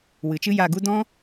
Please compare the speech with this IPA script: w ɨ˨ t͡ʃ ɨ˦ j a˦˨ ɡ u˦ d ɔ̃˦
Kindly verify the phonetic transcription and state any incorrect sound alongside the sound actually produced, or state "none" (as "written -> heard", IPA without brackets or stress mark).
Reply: none